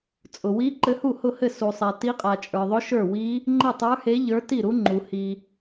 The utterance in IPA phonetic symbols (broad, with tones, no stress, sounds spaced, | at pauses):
t͡sʼ ʊ˩ w i˧˥ ǃ ɘ˧˥ h u˥˩ h ʊ˥˩ h ɘ˥˩ s u˩ sˤ e˩ t i˧˥ qʼ a˩ t͡ʃʼ ə˞˩ ðˤ ʊ˧˥ ʃ ə˞˥˩ w i˧˥ | ŋ͡ǃ ɘ˥˩ tˤ ə˞˧˥ h e˧˥ ʎ ə˞˧˥ t i˥˩ ɾ u˧˥ ŋ͡ǃ u˩ h i˩